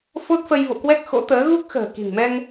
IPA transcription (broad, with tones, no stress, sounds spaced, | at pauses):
f o˦˥ t̚ f ə˧ j v o̰˧˨ k w ɛ˦˥ k̚ x o̰˧˥ t̪ əː˨˦ ɣ u˦˥ k̚ x ə̤ː˨˩ k i̤˨˩ ŋ m ɛ˧ ŋ